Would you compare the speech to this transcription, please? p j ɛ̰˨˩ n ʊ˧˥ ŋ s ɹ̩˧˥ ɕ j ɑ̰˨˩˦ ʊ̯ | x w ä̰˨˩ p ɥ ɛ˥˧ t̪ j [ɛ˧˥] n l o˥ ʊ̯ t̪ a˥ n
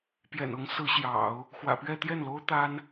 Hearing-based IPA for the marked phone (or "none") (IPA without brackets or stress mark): ɛ˥˩